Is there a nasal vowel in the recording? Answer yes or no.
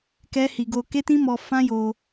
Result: yes